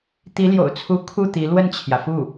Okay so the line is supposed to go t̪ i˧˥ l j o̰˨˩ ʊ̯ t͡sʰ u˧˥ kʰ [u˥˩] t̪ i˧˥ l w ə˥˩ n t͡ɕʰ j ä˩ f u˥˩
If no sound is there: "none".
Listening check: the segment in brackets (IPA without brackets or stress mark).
u˥˩